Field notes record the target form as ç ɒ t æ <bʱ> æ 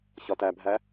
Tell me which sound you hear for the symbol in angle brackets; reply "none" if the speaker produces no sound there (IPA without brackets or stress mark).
bʱ